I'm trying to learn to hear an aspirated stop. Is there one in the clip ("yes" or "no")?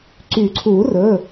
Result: yes